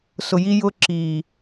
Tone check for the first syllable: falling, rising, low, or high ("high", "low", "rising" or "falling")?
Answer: low